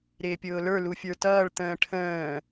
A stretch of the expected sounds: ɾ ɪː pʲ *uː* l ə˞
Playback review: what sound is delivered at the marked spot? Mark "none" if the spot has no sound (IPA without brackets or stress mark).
ʊː